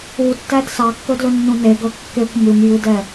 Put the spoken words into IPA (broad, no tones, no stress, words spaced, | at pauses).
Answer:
utːæd sɑkːɵdlɵnːũ neɡɵ kːekʷ mʉmjʉdɛ